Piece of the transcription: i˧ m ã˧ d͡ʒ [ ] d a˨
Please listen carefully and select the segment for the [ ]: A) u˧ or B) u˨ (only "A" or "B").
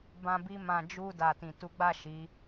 A